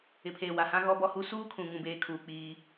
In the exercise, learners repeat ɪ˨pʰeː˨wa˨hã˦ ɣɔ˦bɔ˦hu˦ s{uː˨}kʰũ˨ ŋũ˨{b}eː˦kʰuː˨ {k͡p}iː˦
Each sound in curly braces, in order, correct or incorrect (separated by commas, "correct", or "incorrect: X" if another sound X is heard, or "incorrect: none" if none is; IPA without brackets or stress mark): incorrect: uː˦, correct, correct